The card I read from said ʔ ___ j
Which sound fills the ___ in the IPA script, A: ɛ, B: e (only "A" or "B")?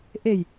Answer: B